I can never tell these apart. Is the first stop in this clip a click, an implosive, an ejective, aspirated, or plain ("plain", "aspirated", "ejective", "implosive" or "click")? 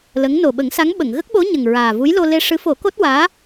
implosive